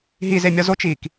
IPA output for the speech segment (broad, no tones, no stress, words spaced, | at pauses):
ɦizemʲɒ zot͡ʃiːk